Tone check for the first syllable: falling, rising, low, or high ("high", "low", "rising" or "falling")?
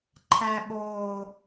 high